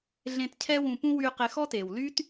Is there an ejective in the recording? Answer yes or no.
no